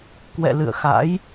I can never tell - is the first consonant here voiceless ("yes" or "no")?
yes